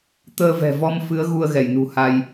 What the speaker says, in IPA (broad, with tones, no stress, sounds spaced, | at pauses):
t̪ əː˧ v ɛ̤˨˩ v ɔ˧ m f ɨ˨˦ ə̯ ɣ u˧ ə̯ ɣ ɛ˧˩ j n ṳ˨˩ h a˧ j